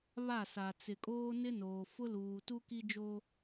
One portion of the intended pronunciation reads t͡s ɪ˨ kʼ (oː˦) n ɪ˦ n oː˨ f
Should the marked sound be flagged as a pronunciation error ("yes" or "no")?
no